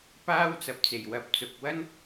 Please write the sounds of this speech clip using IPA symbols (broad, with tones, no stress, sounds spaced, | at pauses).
p aː˥ w t͡s ɐ˨˥ p̚ t͡s e˨˩ j w ɐ˨˥ p̚ t͡s ʊ˨ k̚ w ɐ˥ n